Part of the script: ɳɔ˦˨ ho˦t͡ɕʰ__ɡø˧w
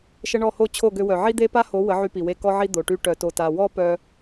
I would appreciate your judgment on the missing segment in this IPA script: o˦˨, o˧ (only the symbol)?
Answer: o˦˨